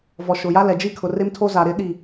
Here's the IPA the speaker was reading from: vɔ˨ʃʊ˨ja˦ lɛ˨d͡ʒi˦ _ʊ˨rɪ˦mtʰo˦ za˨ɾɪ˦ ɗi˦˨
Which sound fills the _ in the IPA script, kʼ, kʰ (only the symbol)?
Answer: kʰ